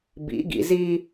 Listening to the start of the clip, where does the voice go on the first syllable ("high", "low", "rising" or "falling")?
rising